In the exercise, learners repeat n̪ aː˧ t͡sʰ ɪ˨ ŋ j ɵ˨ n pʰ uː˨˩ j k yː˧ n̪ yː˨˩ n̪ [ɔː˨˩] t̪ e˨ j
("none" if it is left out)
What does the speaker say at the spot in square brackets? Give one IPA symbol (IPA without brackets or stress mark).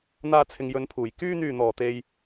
ɔː˨˩